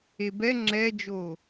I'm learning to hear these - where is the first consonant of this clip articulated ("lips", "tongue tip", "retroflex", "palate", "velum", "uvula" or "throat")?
lips